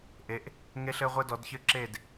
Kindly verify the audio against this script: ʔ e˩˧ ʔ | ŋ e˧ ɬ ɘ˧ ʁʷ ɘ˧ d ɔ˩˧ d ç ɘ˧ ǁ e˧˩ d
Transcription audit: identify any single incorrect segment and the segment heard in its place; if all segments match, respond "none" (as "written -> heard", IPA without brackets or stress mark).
none